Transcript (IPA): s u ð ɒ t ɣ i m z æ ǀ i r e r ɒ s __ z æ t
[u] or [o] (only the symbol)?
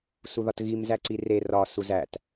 u